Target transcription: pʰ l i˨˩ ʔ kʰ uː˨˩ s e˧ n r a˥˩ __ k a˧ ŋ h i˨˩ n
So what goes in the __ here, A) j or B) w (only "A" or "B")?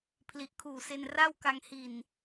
B